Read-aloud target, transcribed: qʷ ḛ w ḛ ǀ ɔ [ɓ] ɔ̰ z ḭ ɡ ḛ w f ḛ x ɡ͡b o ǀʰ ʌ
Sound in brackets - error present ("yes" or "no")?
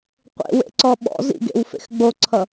no